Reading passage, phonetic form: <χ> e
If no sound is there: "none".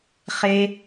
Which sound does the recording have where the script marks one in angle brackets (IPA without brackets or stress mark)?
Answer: χ